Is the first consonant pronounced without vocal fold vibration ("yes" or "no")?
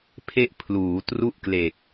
yes